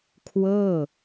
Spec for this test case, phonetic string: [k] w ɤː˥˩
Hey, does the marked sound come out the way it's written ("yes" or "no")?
no